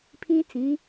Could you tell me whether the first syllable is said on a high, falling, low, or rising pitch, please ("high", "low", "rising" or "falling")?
high